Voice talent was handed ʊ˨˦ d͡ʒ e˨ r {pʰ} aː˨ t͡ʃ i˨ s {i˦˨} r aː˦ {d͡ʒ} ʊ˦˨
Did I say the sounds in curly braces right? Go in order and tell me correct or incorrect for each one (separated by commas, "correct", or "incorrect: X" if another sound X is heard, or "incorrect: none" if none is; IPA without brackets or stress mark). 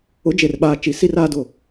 incorrect: ɓ, incorrect: i˦, incorrect: d